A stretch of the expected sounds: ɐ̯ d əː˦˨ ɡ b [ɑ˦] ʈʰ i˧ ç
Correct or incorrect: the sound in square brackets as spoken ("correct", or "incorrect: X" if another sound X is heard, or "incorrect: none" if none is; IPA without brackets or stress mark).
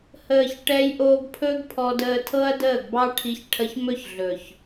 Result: correct